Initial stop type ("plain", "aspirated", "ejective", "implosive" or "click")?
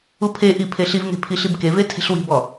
aspirated